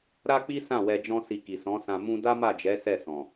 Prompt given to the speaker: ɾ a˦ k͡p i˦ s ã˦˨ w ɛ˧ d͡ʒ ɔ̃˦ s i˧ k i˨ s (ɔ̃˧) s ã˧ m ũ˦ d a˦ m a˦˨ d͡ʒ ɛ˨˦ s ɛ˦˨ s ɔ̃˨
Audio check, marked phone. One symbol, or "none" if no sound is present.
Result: ɔ̃˨˦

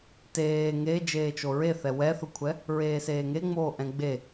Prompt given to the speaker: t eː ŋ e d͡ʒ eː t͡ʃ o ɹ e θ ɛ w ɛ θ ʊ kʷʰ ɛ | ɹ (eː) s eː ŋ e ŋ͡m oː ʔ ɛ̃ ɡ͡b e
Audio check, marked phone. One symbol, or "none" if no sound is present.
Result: eː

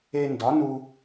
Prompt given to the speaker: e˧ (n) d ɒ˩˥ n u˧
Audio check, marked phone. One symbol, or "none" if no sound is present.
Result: n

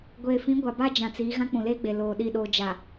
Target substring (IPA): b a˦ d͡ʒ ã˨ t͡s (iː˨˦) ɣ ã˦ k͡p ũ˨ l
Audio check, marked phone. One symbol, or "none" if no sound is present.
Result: iː˨˦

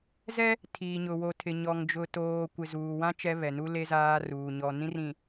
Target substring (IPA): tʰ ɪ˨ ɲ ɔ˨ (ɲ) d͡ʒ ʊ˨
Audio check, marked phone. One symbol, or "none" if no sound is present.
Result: ŋ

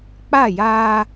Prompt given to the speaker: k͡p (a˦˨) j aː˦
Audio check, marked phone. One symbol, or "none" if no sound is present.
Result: a˦˨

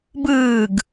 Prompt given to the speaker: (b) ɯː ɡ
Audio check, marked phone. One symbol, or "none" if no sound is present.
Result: b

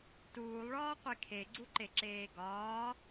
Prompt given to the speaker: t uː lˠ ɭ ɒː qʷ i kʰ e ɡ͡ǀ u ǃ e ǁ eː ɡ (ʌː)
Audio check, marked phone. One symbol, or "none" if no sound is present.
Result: ɒː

